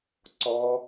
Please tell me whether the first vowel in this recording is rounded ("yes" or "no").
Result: yes